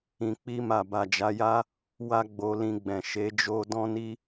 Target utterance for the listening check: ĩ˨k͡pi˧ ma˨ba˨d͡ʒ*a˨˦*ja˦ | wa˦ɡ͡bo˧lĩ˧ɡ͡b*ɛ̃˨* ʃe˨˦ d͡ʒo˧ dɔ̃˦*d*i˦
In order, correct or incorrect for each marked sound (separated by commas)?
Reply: correct, correct, incorrect